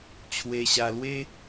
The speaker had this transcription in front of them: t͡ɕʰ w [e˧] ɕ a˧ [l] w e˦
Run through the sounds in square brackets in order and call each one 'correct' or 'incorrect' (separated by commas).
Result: correct, correct